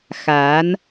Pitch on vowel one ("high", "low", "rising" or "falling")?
rising